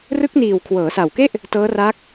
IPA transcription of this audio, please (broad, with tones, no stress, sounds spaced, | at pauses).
r ɯ˦˥ k̚ n iː˨˩ w kʰ w ɤː˩˦ s a˨˩ w k e˥˩ ʔ | t ɤː˦˥ r a˦˥ k̚